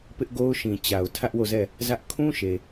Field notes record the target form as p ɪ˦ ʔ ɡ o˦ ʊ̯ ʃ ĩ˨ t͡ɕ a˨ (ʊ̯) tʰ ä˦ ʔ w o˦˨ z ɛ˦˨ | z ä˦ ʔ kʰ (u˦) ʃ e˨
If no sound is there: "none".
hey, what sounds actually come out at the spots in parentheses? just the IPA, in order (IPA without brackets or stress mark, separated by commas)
ʊ̯, ũ˦